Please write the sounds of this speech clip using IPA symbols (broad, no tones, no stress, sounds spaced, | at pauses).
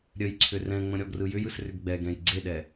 ɾʲ ə j ǀʰ ʏ r ɛ̃ ŋ͡m ə̃ ɾʲ ɔ ɡ r ɯ j ʏ j ɯ s r ʏ ɡ ɡ͡b ɛ ɡ ɛ̃ j ɡ͡ǀ e ɗ ɛ